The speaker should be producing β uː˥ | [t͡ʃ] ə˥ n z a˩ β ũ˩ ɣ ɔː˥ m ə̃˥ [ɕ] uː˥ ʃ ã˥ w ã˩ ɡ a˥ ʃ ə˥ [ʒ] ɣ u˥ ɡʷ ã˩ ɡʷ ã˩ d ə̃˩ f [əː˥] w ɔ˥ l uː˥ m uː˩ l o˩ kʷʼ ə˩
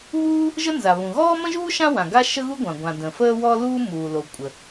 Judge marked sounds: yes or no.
no, no, no, yes

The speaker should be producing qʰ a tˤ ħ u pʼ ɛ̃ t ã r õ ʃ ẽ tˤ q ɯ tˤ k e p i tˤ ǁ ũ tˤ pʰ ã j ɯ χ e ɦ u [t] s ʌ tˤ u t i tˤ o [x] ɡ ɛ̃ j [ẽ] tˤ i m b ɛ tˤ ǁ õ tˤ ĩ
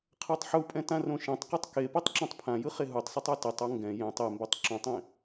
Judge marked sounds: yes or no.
no, no, yes

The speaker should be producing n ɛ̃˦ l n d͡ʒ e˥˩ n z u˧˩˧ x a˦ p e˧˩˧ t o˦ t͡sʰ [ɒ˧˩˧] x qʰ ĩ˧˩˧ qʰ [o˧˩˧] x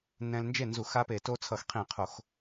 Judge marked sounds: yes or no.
no, yes

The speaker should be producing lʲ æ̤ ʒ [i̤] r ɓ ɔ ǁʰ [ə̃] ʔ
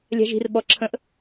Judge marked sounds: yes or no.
yes, yes

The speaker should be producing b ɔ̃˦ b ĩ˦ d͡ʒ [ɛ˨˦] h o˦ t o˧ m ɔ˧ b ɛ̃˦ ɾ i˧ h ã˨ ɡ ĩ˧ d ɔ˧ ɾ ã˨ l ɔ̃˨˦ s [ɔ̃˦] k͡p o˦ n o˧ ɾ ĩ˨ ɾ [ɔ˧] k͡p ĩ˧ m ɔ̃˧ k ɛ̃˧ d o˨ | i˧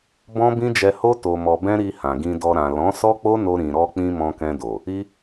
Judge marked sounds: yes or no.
no, no, yes

